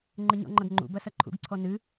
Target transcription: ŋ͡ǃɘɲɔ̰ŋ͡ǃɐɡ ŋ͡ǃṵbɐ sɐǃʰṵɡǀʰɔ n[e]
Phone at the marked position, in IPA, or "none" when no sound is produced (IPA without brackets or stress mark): ɨ